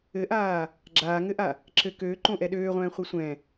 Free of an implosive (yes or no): no